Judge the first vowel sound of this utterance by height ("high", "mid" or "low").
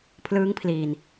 high